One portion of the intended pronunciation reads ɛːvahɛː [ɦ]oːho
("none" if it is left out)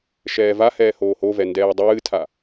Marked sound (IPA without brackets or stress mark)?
h